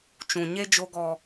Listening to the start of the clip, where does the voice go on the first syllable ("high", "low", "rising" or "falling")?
low